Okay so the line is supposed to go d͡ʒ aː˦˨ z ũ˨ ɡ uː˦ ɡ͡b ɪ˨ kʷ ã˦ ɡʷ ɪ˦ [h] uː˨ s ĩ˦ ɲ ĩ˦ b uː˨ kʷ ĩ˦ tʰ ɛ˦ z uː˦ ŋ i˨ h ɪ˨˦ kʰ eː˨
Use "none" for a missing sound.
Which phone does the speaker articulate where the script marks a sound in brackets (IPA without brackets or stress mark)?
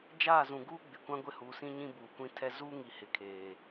h